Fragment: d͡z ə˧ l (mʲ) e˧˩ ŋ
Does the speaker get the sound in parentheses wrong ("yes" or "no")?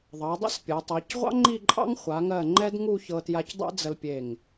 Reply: yes